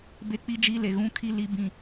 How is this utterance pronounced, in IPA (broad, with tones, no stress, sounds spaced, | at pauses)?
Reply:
b e˦ k͡p i˦ d͡ʒ i˦ l e˨ ɣ ũ˦ kʰ i˦ l i˦ b ĩ˦